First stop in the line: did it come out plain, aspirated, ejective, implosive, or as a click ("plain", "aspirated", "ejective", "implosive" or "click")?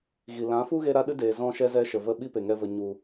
implosive